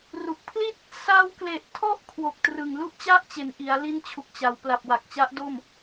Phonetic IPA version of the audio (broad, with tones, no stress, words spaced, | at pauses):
ru˨˩k̚pʰli˥˩t̚ | sa˧wkle˨˩ʔtʰɔ˦˥ʔ kʰwo˨˩k̚trɯ˨˩ŋ lu˥˩ʔt͡ɕa˥˩ʔt͡ɕe˩˦nʔi˩˦a̯ li˦˥nt͡ɕʰu˨˩k̚t͡ɕa˩˦w pla˨˩p̚wa˨˩k̚t͡ɕa˦˥ʔ do˥˩m